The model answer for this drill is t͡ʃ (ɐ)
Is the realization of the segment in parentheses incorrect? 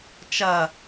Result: no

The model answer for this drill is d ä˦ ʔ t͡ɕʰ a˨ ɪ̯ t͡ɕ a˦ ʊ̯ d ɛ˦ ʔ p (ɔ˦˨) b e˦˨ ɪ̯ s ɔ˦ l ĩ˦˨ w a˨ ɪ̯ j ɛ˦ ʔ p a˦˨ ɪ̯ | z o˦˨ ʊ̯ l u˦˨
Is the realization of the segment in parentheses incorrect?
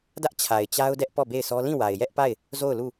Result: no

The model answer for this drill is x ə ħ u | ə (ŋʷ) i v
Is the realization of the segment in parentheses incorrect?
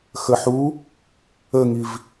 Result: yes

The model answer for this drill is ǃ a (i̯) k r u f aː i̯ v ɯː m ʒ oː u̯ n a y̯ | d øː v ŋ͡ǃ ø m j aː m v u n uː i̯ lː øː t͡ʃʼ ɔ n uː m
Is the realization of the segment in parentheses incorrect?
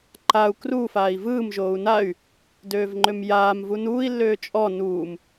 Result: yes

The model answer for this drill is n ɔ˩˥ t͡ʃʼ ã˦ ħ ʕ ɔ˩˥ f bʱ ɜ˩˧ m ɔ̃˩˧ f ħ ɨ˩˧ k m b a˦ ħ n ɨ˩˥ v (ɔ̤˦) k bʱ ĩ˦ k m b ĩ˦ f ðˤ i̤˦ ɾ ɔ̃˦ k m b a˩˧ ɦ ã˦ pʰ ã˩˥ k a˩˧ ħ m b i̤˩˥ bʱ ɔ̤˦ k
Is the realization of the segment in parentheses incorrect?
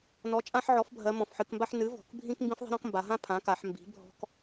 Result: yes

